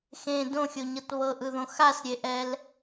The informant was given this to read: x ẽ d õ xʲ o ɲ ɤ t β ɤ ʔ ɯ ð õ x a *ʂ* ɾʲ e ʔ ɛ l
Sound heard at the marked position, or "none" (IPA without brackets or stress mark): s